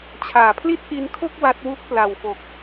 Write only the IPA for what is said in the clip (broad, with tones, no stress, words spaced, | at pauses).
t͡ɕʰaː˩˦pʰli˥˩t̚ʔi˧nkʰo˥˩k̚ wa˦˥t̚wu˥˩k̚ pla˨˩wfo˨˩k̚